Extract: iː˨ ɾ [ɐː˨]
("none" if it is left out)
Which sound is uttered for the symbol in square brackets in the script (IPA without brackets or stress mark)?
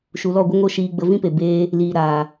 aː˨